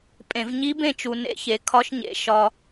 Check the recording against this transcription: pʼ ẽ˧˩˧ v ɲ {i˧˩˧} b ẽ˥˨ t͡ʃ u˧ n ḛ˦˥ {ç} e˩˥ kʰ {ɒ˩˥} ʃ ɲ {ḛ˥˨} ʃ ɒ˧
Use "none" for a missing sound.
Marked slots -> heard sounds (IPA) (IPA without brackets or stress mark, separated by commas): i˦˥, ç, ɒ˦˥, ḛ˩˥